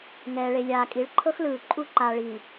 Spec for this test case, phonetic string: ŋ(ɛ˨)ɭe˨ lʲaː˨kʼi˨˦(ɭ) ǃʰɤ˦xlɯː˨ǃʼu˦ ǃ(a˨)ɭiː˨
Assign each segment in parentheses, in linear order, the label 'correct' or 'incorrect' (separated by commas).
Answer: incorrect, correct, correct